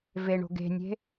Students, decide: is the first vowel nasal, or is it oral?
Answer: oral